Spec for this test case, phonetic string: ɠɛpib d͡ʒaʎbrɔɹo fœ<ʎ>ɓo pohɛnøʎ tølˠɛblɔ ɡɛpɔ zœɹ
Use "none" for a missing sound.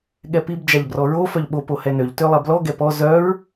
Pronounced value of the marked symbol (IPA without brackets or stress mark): ʎ